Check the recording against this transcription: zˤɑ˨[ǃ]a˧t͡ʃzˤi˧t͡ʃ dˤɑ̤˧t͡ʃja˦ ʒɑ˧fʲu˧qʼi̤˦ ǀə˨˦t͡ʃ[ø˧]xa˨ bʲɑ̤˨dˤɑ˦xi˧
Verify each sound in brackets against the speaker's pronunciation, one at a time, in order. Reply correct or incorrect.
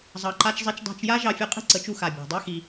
correct, incorrect: u˧

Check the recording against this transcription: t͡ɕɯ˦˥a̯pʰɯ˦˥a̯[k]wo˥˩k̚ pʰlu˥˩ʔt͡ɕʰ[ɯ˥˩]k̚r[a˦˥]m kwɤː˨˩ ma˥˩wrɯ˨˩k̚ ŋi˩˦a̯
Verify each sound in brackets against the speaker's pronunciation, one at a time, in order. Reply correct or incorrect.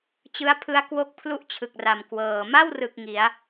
correct, incorrect: ɯ˨˩, incorrect: a˨˩

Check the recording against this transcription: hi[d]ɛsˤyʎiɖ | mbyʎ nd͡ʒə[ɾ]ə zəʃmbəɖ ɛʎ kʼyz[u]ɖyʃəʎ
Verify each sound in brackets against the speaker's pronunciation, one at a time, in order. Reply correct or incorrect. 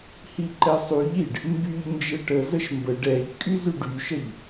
incorrect: ǃ, incorrect: ʈ, incorrect: y

